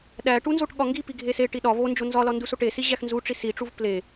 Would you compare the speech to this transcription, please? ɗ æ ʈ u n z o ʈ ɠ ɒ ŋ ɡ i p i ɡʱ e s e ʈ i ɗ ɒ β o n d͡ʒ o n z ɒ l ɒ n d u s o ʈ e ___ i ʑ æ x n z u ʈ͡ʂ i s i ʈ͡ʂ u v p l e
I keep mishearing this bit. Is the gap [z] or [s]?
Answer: s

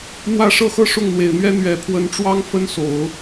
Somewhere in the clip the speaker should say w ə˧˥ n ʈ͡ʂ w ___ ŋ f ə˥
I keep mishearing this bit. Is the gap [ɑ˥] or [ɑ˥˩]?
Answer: ɑ˥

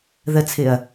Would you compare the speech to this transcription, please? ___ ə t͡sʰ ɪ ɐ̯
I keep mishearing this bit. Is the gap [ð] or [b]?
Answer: ð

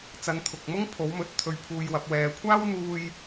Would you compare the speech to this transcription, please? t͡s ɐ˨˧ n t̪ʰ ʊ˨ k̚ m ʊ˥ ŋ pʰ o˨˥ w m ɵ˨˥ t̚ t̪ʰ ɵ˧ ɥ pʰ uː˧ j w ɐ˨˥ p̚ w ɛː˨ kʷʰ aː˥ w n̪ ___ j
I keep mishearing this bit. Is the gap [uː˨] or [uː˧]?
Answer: uː˧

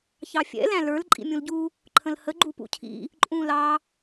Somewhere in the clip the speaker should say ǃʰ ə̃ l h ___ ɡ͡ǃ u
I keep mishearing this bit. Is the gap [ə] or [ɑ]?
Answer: ə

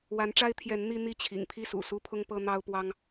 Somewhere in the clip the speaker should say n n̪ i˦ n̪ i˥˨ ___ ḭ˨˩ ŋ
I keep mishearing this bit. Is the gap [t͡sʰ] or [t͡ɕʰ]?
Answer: t͡ɕʰ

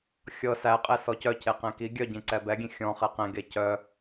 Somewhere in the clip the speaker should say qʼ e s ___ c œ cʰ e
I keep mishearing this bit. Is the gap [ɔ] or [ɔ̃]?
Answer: ɔ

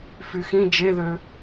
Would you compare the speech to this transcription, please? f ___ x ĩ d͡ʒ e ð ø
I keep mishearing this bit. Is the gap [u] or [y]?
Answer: y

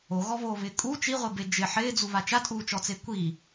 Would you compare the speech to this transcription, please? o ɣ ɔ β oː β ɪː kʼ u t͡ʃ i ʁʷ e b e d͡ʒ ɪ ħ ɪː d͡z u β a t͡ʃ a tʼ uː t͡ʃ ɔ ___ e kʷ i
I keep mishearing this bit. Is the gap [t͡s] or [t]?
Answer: t͡s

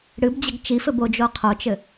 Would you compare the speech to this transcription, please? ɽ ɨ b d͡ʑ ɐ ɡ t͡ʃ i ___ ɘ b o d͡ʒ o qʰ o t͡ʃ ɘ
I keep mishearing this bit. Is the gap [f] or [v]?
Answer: f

